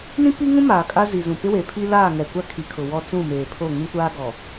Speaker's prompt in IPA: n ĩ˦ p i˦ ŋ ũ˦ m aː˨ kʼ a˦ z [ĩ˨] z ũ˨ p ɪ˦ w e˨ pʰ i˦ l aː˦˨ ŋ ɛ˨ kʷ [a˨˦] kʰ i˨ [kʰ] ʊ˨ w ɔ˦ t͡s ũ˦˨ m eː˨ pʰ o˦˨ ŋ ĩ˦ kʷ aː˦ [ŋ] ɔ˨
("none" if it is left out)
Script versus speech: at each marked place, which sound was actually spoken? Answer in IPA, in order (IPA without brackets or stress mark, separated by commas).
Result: i˨, a˦, kʰ, ɡ